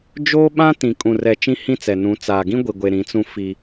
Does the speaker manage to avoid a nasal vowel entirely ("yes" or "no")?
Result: no